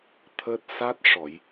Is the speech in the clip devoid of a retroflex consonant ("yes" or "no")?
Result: no